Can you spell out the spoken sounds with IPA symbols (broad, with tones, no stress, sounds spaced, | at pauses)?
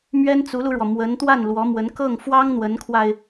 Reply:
m ɥ ɛ˥ n t͡s u˧˥ l u˧ ɻ w ɔ˩ m w ə˧˥ n t̪ w a˥˩ n l w ɔ˧˥ m w ə˧˥ n k ɤ˥˩ ŋ f w ɑ˥ ŋ n̪ w ə˧˥ n kʰ w a˧ ɪ̯